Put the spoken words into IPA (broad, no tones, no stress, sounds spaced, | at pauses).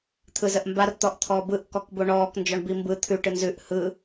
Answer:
t̪ʰ ɯ z ə ʔ m b a r t̪ ɔ ʔ t̪ʰ ɔː b ɯ ʔ k ɔ k b o ɳ ɔː k n d͡ʒ ɔ ɳ b i m b ɯ t̪ʰ ʉ ʈ ɯ n z ʉ ʔ h ɯ